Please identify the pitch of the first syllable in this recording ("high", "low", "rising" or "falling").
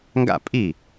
falling